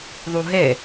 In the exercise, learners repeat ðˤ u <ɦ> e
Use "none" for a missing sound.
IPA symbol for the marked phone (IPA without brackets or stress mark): ɦ